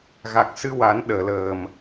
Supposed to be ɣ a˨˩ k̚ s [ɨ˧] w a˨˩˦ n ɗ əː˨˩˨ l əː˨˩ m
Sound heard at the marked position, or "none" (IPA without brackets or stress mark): ɨ˧